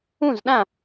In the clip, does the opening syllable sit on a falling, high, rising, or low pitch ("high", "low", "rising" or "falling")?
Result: falling